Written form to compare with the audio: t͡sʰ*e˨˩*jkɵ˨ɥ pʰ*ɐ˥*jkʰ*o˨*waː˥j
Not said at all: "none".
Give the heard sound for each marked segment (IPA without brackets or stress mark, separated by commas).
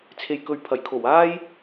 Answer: e˨, ɐ˨˩, o˨˩